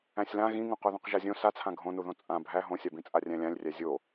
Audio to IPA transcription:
æ̃sʲlã ɣĩŋũ qoðõqʒazʲõ sat͡sʰã ɡʱõnuðõ t͡sʼã bʱæ ɦõsʲabĩ t͡sʼarʲæ̃lʲãlʲrʲæ zʲo

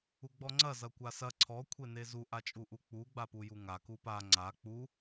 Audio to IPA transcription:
uɡ͡bɔŋ͡ǀɐ zɐkʷasɐ ǀʰɔ kʷʰenezu ʔat͡ʃʼuʔuk͡pu ɡ͡bapujuŋa kupa ŋ͡ǀa k͡pu

